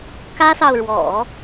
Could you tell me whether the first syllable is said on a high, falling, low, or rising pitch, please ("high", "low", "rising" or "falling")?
high